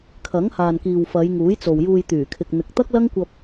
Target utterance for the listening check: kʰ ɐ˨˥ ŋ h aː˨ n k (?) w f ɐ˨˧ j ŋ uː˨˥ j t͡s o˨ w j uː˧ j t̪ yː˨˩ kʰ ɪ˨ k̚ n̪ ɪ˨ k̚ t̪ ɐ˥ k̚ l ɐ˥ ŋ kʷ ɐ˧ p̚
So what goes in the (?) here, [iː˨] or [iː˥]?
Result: iː˨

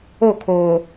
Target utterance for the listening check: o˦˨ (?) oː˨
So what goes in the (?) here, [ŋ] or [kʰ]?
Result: kʰ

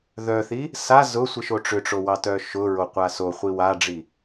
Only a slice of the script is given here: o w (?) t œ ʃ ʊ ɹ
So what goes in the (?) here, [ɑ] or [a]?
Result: ɑ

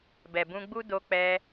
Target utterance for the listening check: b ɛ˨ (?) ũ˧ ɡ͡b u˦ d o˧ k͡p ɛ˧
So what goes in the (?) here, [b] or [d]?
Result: b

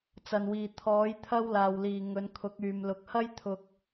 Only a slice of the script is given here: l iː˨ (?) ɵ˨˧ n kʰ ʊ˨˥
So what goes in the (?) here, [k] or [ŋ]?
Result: ŋ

